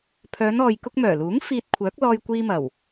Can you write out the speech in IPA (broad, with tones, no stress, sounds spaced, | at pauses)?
pʰ œː˨˧ n ɔː˨ j k ʊ˧ k̚ m œː˨˩ l uː˨˥ ŋ f iː˧ t̚ kʷʰ œː˨˥ k̚ l ɔː˧ j kʷ iː˧ m ɐ˨˩ w